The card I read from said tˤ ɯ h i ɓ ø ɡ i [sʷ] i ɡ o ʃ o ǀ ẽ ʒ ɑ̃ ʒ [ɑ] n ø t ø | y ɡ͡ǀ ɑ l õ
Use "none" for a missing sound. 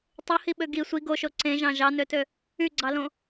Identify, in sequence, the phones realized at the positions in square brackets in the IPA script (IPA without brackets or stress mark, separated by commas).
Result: sʷ, ɑ